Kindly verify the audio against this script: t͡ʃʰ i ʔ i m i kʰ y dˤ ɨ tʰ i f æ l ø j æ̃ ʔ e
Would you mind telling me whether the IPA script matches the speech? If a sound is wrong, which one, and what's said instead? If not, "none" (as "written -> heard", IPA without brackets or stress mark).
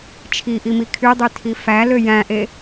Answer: ɨ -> y